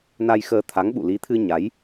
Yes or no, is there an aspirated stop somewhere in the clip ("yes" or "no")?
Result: yes